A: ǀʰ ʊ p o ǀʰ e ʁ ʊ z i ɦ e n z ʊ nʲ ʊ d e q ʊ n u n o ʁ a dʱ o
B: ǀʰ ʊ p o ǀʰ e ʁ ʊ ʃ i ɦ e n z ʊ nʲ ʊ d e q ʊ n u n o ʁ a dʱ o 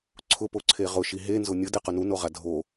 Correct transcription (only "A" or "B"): B